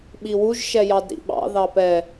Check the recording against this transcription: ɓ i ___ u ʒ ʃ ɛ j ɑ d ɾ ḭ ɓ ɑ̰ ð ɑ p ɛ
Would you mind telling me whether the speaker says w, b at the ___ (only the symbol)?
w